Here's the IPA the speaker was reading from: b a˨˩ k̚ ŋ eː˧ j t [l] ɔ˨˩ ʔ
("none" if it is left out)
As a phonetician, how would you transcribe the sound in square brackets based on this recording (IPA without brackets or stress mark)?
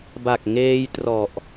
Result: r